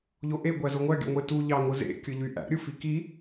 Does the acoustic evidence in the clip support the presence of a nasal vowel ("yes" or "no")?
no